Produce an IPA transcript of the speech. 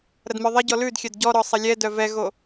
ɾ ɐ d m œ ðˤ ɐ ɟ ɔ l ʉ d xʲ œ d ɟ ɔ ɾ ɔ sˤ ɐ lʲ ɛ d œ v ɛ ɣ o

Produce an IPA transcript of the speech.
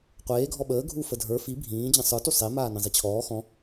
qʷ eː ɡʱ ɔ ɓ əː ɡʱ u f ə dʱ ə˞ f i bʱ ĩː d͡ʑ ə̃ sˤ ə˞ t u sˤ e m aː n ẽ zˤ i t͡ɕʰ ɔː x ɔ̃

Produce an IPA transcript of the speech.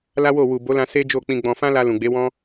l a˦ w o˦˨ w u˨ b o˨˦ l ã˧ s e˦ d͡ʒ o˦˨ k͡p ĩ˧ ɡ͡b ɔ̃˧ f ã˦ l a˧ l ũ˨ ɡ͡b e˨˦ w ɔ̃˦

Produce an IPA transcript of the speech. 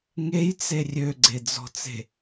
ŋ e j t͡s e rʲ ø ɡ͡ǀ e d͡z ɔ̤ t͡s e̤

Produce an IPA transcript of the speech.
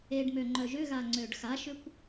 e ɖ m ø ŋ͡ǃ œ ʒ ʏ ɣ a ŋ͡ǀ ø ɖ x a ʃ ʏ kʷ

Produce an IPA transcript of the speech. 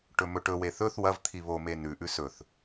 ʈ ɵ m ɵ ʈ ɵ w e θ ɵ θ w ɐ v t̪ʰ i β o m e n ʉ ʔ ʉ s ɵ θ

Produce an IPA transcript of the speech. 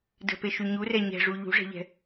d ə̤ p e ʃ y ɲ u r ɛ ɲ ɛ̤ ʐ u ʎ ṳ ʐ ɛ̤ ʎ ɛ̤

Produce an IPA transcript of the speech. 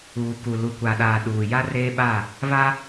uː˨ k u˨ l u˨ kʷ a˨ ɗ aː˨ ɗ uː˨ j a˦ r eː˦ ɓ a˦˨ | β a˦

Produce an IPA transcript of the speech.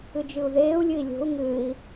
ɨ d͡ʒ ɨ u̯ ð eː u̯ lʲ ɨ i̯ lʲ o̤ u̯ ŋ ɨː i̯

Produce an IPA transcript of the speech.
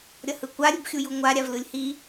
ɾʲ ʌ h ɯ kʷ a ɾʲ u b xʲ u j u ŋʷ a ɾʲ a v l ɯ lʲ h i

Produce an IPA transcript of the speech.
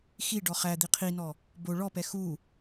x i ɖ ɔ χ æ d̪ i qʰ i n ɔ | b o ɭ ɔ p ɛ x u

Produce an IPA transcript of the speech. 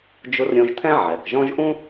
d͡ʒ ʊ˧˥ r ɾʲ õ˧ ʒ t̪ʰ ɛ̃˥ ʕ ɛ˩ k ʒ ɔ̃˥ ʒ ʔ ũ˥

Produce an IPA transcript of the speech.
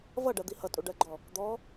v ʌ ɖ ɜ d̪ i h ʌ tʼ u ɖ ɜ ɡ͡ǃ ɔ | d̪ ɔ

